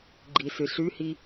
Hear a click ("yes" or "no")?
yes